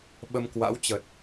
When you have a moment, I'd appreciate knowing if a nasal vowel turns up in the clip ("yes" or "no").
no